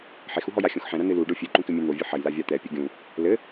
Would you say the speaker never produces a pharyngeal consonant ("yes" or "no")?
no